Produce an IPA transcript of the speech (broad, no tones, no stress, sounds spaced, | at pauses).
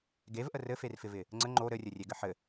ɡ e v ʔ ə r ɘ f e r f ɪ v ɪ | ŋ͡ǀ ə ŋ͡ǃ o ɾ ɘ rʲ ɘ rʲ e ɡ ɘ ħ ɘ